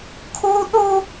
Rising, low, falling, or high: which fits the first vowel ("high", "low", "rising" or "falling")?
high